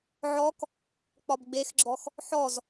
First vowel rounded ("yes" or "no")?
yes